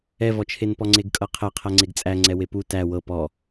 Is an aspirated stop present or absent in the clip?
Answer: present